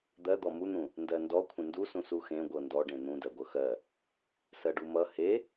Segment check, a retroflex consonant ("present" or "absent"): present